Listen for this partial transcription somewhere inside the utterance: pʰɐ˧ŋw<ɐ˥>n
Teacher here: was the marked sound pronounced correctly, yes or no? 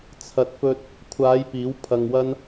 yes